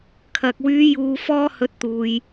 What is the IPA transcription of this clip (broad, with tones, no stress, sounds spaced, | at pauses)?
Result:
kʰ ɐ˨ k̚ w yː˨˧ j uː˨ f ɔː˧ h ɵ˨ t̚ t̪ uː˨ j